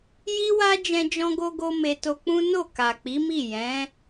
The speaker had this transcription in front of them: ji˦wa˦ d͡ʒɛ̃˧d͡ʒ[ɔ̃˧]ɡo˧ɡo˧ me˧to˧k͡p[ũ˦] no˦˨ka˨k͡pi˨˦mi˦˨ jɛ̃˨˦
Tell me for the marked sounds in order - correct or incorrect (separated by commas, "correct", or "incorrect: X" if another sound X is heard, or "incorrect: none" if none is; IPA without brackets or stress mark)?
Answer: correct, correct